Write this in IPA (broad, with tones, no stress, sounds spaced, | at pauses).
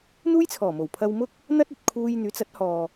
n̪ uː˥ j t͡sʰ ɔː˨˩ m o˨˩ w pʰ ɐ˧ w m ʊ˥ k̚ | n̪ ɐ˥ t̚ ɵ˨ t̚ kʰ uː˧ j n̪ yː˨˥ t͡s ɐ˨˥ t̚ h ɔː˨